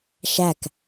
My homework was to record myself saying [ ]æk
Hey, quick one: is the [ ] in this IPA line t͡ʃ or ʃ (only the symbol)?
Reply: ʃ